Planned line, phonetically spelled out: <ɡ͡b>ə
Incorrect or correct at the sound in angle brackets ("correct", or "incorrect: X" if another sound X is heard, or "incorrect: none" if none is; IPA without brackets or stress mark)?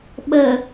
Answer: incorrect: ɓ